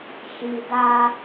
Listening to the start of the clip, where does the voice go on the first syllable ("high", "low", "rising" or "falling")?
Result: low